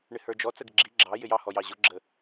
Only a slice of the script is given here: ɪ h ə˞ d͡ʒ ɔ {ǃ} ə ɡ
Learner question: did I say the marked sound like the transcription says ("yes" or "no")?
no